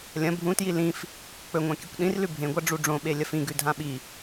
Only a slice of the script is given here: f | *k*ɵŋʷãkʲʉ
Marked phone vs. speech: incorrect: k͡p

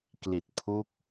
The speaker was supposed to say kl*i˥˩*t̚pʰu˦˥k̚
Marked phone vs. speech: incorrect: i˨˩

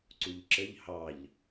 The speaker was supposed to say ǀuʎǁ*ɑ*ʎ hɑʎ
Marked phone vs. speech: incorrect: ə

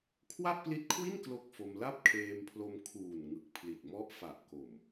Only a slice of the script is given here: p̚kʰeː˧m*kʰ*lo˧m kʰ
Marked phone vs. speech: incorrect: pʰ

